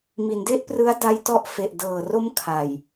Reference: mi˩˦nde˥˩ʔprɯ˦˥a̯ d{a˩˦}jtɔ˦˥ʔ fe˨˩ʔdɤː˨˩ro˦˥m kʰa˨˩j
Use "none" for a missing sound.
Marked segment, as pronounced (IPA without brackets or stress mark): a˦˥